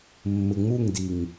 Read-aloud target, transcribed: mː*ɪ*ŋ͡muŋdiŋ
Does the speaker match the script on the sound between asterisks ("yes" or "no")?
yes